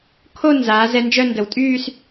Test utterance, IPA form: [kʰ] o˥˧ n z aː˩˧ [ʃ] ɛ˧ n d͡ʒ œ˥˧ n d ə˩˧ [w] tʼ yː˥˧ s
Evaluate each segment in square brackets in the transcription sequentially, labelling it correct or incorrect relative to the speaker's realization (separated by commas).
correct, incorrect, correct